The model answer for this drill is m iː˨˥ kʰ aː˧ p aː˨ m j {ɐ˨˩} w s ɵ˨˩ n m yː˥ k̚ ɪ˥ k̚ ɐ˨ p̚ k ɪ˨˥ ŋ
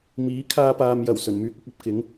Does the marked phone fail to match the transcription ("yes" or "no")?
no